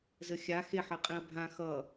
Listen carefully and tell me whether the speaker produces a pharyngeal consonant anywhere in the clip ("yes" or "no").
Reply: yes